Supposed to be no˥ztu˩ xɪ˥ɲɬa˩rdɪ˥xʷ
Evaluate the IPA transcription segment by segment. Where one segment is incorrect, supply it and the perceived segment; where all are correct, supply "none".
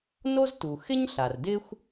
none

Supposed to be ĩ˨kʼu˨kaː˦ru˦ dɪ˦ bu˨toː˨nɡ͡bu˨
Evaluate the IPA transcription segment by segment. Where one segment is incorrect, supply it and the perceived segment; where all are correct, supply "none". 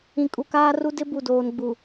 t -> d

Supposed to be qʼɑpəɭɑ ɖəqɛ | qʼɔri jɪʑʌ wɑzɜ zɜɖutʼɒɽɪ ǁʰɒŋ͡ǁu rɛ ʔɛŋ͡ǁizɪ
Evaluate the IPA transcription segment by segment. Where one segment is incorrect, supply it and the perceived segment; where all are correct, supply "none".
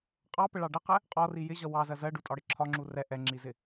none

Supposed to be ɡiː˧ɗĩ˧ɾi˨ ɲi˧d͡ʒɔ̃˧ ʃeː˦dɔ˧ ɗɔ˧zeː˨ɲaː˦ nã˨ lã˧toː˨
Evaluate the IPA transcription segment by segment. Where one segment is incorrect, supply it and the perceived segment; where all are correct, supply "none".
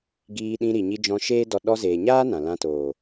none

